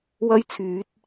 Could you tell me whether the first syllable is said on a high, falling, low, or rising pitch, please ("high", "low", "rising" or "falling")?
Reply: high